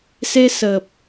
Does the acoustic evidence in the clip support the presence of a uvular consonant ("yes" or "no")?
no